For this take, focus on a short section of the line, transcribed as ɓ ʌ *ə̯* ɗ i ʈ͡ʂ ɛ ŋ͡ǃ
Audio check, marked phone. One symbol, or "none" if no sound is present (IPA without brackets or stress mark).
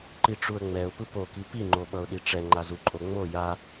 ʊ̯